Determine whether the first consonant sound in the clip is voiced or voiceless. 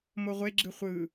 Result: voiced